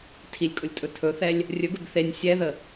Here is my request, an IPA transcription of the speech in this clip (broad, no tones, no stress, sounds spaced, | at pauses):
tʰ i lʲ kʼ ʊ lʲ tʼ ɵ tʰ ɵ θ ɛ lʲ | rʲ ɵ ɡ ɵ b θ e nʲ sʲ ɛ ð ə